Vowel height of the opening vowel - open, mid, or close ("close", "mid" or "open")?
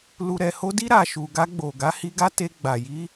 close